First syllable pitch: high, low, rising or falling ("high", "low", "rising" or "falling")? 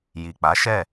low